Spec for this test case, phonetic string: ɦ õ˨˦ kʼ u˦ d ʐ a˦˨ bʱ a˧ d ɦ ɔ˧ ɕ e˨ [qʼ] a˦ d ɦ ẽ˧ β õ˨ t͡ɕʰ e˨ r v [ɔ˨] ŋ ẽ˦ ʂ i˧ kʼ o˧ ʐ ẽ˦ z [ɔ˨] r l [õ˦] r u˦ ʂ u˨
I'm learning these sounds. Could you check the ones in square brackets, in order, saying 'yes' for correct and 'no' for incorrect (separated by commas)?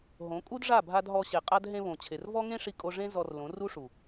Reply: yes, no, no, no